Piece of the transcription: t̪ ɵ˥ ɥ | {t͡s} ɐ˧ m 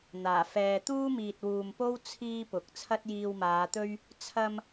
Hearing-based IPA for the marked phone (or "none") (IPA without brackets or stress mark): t͡sʰ